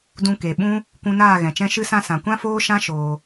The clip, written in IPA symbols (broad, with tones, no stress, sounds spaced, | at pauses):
d ũ˧ k e˨ ɓ ũ˦ | kʷ ũ˧ n aː˦˨ ɣ ɛ̃˨ t͡ʃ ɛ̃˦ ʃ ɨ˧ s ã˧ s ã˨ kʷ ã˦ f oː˦ ʃ ã˦ ʃ oː˧